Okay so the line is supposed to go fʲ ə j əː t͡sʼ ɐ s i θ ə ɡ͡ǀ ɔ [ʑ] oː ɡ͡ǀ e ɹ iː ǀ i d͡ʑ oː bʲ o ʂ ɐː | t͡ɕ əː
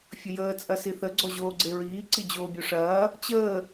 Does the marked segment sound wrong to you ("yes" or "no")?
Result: no